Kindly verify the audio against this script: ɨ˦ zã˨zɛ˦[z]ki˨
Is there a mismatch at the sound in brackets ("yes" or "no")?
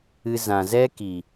yes